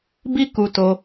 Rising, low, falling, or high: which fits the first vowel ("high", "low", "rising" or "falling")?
high